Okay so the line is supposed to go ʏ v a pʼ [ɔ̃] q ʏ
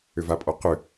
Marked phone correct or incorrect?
incorrect